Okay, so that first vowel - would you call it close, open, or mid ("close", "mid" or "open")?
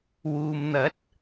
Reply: close